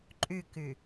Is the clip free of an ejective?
no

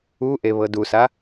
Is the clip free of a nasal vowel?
yes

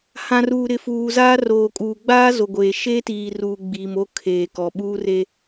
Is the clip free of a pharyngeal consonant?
yes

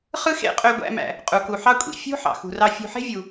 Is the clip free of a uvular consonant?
no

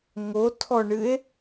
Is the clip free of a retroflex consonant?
no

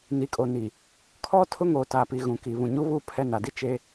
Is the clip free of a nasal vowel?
no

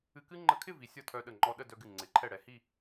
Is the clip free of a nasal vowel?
yes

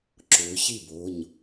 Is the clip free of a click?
no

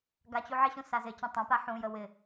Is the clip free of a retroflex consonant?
yes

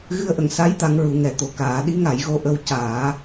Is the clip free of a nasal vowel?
yes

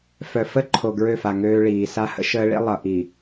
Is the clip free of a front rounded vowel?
no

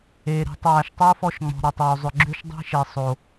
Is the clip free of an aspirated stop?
yes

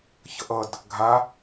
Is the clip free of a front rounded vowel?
yes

